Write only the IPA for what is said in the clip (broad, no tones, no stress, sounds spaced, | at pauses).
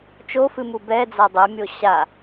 t͡ʃ o f ɨ m u b ɛ d͡z a dˤ ɘ mʲ o ɕ a